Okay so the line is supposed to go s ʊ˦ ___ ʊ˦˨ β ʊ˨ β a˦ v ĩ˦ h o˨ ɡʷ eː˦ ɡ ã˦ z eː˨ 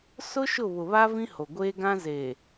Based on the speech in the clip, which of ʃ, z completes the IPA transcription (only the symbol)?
ʃ